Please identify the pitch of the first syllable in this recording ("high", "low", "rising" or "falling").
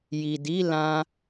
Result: low